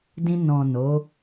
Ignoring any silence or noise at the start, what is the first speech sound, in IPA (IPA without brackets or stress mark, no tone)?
d